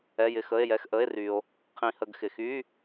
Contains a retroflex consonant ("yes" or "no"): no